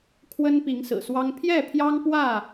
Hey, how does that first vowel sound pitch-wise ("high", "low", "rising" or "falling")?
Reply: high